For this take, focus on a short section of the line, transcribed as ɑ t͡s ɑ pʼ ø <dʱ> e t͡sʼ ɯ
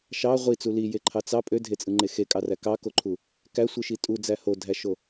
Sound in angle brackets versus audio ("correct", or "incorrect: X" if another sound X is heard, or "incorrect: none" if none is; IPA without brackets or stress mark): correct